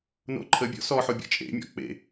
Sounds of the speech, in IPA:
n o̰ ǃʰ ə bʲ ɔ̰ s ɔ ħ o bʲ ɔ̰ t͡ʃʼ ḛ mʲ ɔ̰ k͡p ḛ

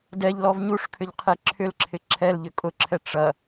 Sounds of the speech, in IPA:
d ɛ ʎ l ɔ v ɲ u ʂ kʰ ʏ ʎ qʰ e ǁʰ ʏ l ǁʰ ɪ ǁʰ ɛ l ʎ ʏ kʼ ʊ ǁʰ ɛ ʈ͡ʂ ɐ

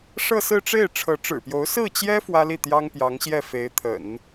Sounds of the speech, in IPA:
ʂ ɤ˥˧ s ɹ̩˥˧ ʈ͡ʂ e˥˩ ɪ̯ ʈ͡ʂʰ ɤ˧˥ ʈ͡ʂ ɻ̩˨˩ p j o˧˥ ʊ̯ s ɹ̩˥˩ t͡ɕ j ɛ˥ f w ä˥ l i˥˩ t̪ j ɑ˥ ŋ p j ɑ˧˥ ŋ ɕ j ɛ˥˩ f e˧˥ ɪ̯ t̪ʰ ə̰˨˩˦ n

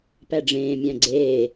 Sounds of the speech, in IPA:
p æ ɖ͡ʐ ẽː mʲ æ̃ ɡ͡ǀ eː

